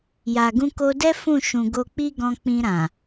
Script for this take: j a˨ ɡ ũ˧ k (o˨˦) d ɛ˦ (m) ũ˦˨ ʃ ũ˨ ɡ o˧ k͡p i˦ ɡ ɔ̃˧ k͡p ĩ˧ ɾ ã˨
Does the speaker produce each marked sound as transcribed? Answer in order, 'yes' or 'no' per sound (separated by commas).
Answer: no, no